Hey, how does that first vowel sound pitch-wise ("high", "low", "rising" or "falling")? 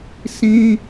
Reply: high